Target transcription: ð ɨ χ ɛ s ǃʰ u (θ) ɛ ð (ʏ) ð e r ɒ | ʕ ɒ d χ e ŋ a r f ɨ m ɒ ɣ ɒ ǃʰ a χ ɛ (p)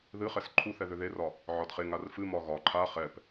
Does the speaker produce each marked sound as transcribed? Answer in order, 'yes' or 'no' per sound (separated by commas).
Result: yes, yes, yes